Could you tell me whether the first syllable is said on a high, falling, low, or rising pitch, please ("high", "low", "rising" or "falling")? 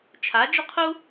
rising